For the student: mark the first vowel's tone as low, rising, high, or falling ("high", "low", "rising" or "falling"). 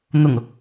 low